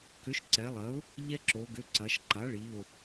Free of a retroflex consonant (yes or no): no